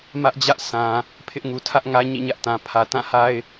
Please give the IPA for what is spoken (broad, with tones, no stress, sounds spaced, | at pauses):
m ä˦ ʔ d͡ʑ ä˦ ʔ s ã˨ | pʰ ɪ˦ ʔ ŋ u˨ tʰ ä˦ ʔ ŋ ä˦ ɲ ḭ˦˨ ɲ ä˦ ʔ t ã˨ pʰ ä˨ t ã˦˨ h a˦ ɪ̯